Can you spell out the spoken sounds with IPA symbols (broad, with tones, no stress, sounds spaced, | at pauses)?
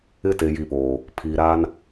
ɪ˦ t e˨ j i˨ p oː˨ | pʰ iː˨ ɾ aː˦ n